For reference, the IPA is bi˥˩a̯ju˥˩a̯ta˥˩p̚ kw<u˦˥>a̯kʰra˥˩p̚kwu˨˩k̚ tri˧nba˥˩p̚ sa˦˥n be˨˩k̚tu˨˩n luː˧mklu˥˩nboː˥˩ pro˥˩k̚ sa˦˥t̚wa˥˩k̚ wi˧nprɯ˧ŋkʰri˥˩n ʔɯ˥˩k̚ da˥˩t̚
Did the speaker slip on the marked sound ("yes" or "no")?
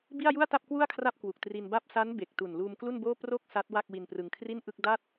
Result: yes